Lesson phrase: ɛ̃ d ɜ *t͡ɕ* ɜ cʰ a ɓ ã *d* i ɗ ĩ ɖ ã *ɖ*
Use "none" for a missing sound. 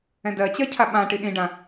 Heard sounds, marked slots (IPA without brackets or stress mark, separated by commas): t͡ɕ, ʈ, none